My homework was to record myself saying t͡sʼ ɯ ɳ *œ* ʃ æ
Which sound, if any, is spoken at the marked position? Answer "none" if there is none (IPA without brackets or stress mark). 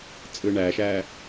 æ